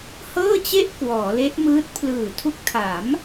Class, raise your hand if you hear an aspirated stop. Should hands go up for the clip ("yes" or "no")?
yes